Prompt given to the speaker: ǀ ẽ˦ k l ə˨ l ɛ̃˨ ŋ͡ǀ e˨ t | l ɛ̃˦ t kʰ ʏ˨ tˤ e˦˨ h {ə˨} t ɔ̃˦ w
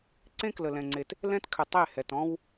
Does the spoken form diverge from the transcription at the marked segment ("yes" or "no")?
yes